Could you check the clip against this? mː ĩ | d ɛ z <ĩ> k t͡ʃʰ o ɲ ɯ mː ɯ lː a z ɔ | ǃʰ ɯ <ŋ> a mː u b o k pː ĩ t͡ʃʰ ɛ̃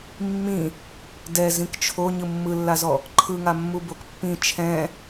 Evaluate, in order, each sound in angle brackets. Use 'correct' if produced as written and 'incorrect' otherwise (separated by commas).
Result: correct, correct